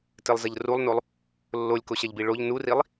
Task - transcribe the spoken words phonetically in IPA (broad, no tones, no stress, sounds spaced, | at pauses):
t ɘ lˠ z ɐ ʎ r u lˠ n o lˠ | lː o lʲ k o ɕ ɐ ʎ b i ɭ o ʎ n u r i lˠ